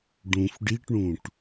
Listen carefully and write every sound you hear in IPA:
ɖ ũ f ɖ i ʈ ɳ ũ ʈ

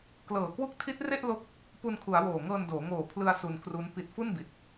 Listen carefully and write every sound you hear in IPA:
k l ɤː˨˩ k w u˦˥ k̚ tʰ i˦˥ t̚ r e˥˩ ʔ l o˥˩ k̚ | p u˧ n kʰ u˩˦ a̯ w oː˨˩ ŋ ɤː˧ n d oː˩˦ ŋ oː˨˩ pʰ l ɯ˧ a̯ s u˧ n k r u˦˥ n p i˨˩ t̚ f u˥˩ n b i˨˩ t̚

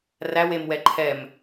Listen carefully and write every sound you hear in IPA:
r æ w e m w ɛ ǃʰ ɛ m

